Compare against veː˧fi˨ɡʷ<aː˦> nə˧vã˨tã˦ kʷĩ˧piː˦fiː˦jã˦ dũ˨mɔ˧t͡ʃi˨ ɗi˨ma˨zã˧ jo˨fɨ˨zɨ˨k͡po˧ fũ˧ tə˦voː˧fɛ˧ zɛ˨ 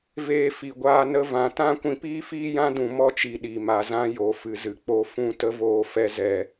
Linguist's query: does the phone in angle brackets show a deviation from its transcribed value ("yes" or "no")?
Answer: yes